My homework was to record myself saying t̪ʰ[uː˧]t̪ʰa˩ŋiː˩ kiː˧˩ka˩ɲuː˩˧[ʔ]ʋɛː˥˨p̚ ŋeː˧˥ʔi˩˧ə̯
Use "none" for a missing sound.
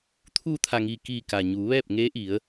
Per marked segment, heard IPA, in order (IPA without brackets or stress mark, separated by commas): uː˧, none